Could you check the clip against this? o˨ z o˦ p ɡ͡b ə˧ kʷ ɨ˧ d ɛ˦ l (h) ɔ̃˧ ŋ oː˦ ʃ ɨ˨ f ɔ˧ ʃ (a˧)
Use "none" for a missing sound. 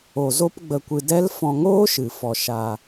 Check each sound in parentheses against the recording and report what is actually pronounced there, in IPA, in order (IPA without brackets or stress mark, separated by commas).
f, a˧